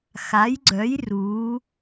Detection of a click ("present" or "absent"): present